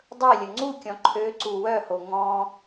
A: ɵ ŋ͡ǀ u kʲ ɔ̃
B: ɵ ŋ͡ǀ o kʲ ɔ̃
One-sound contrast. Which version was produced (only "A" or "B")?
A